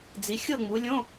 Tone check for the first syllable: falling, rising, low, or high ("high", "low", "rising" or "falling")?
rising